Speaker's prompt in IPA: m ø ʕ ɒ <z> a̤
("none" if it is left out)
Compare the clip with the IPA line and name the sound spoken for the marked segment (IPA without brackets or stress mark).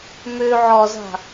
z